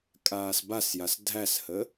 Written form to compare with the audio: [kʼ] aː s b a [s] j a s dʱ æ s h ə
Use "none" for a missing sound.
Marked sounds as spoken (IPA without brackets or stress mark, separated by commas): kʼ, s